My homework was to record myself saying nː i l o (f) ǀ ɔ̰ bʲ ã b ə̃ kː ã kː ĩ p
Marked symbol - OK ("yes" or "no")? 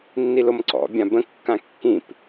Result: no